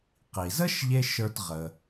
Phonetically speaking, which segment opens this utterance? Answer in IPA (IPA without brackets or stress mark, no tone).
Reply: q